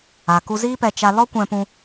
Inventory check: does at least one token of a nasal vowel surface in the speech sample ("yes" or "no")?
yes